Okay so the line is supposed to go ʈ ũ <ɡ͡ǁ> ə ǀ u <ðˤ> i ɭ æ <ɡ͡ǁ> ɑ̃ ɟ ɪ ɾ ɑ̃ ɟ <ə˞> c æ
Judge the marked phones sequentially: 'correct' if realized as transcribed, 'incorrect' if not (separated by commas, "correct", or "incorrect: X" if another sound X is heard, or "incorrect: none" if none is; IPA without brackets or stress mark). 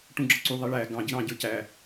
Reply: correct, correct, incorrect: ɡ, correct